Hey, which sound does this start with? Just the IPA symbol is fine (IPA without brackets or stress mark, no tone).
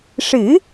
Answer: ʂ